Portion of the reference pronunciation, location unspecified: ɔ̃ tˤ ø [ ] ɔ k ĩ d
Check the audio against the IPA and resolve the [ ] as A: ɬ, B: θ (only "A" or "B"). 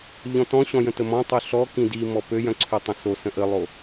A